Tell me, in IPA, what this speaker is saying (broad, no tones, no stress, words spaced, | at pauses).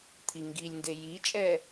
t̪ʰiŋɡilʲnde jit͡ʃʼɛ